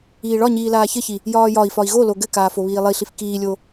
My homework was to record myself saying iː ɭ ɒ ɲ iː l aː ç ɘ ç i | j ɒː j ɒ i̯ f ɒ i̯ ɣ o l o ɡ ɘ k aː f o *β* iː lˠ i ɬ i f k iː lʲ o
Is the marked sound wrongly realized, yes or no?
no